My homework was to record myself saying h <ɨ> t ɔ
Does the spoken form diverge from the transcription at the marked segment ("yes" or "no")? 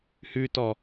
yes